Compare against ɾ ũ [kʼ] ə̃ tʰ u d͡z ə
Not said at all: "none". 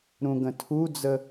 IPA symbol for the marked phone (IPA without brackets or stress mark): ɡ